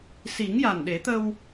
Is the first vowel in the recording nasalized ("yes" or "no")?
no